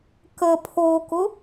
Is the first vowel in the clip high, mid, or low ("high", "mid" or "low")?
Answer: mid